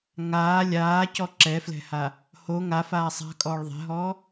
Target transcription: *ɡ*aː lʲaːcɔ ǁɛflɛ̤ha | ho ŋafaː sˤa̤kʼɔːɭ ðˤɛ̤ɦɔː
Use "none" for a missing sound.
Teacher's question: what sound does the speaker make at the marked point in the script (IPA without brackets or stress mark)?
ŋ